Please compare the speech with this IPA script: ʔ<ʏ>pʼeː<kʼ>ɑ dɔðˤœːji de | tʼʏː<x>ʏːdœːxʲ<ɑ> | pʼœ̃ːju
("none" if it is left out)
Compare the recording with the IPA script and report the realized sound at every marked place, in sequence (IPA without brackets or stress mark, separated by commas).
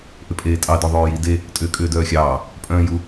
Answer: ʏ, tʼ, kʼ, ɑː